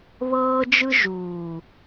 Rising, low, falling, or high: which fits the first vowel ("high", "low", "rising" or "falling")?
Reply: high